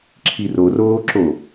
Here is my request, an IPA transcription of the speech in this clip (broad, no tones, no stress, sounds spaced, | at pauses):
ǁʰ i r o r oː ǁ o